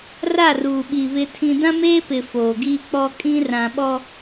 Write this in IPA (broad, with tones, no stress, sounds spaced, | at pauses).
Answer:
r a˦˨ r uː˨ ɓ i˨ β ɪ˦ tʰ ĩ˦ d ã˦ m eː˦ p ɪ˨ f oː˨ ɡ iː˦ k͡p ɔ˦ kʼ ĩ˦ r ã˨ ɓ ɔ˦